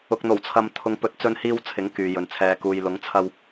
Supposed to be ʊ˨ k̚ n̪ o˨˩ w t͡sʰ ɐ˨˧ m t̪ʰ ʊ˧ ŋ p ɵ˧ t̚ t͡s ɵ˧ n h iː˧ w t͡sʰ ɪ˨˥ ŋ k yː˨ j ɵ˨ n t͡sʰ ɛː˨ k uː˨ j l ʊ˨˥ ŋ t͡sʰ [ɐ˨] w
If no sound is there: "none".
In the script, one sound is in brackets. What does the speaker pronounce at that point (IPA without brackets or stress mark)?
ɐ˧